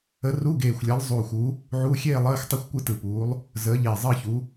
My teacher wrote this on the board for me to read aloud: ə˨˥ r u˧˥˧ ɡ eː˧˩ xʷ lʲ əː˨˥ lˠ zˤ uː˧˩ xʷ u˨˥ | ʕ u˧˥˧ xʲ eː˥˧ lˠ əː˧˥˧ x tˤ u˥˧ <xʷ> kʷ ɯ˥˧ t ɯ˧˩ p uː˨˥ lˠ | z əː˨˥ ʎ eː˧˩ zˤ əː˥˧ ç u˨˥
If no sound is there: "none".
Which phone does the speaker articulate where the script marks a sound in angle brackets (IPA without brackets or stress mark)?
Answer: xʷ